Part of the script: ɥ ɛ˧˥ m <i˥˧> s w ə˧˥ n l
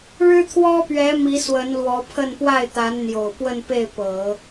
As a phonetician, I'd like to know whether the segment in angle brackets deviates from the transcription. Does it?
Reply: yes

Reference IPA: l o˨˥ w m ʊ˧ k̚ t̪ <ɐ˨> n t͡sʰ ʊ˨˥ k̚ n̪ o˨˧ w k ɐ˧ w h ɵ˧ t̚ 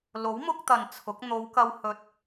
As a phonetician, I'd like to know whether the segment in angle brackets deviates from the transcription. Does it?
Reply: no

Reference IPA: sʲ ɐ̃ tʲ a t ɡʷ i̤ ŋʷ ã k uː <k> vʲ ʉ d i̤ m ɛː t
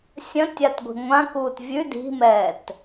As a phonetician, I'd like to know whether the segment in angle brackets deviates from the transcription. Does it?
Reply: yes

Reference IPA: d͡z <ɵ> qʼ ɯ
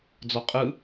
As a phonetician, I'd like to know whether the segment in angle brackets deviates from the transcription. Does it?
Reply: yes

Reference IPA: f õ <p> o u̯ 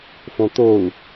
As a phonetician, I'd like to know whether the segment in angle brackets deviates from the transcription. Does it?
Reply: yes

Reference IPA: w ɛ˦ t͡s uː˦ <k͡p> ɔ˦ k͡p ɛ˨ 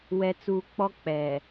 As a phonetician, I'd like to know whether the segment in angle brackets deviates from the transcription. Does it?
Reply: no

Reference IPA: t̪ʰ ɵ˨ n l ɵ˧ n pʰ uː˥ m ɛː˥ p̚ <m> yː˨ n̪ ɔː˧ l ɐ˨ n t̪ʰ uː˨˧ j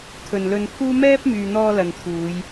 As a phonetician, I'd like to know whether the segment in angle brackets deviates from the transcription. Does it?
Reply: no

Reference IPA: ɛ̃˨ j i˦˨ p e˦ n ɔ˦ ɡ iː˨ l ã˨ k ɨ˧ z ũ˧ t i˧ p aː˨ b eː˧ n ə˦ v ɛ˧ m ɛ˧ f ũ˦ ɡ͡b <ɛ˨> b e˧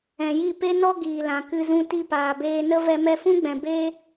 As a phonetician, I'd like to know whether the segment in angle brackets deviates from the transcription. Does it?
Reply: yes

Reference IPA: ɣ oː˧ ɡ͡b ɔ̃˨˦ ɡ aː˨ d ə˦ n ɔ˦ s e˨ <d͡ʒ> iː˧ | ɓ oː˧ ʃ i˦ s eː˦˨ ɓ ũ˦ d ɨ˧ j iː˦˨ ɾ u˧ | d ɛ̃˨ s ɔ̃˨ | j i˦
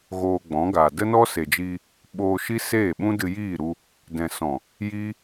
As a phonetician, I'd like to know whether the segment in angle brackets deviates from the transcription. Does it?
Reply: no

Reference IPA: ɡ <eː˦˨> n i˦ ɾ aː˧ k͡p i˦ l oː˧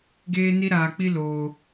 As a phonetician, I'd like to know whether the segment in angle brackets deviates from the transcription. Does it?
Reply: yes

